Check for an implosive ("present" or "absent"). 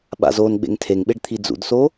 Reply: present